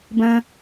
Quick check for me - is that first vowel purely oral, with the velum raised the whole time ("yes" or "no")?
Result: no